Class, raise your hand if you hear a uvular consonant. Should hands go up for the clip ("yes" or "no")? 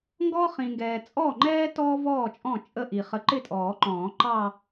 yes